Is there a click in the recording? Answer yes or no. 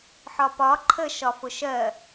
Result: yes